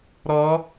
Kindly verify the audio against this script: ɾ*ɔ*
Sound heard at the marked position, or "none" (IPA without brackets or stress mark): ɔ